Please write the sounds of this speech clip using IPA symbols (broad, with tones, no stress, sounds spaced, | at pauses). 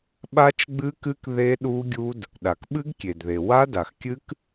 ɓ a˦˥ t͡ʃ ɡ͡b ɨ˦˥ k ɨ˦˥ k ð e˦˥ ɗ u˦˥ ɡʲ u˦˥ d | ɗ a˩ k ɓ ɨ˦˥ ɡ kʲ e˩ d ð e˩ w a˦˥ d a˩ x kʲ ɨ˦˥ k